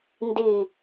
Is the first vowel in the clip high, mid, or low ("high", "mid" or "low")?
high